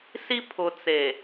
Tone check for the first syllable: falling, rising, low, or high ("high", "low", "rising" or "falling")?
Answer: high